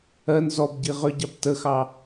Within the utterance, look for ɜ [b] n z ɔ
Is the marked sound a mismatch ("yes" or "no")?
yes